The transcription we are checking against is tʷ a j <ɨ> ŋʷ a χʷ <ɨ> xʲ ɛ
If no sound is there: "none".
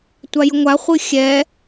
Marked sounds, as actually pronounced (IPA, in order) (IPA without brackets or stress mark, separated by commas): ə, ɨ